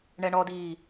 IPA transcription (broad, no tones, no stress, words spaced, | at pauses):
ɳɛɳɔdiː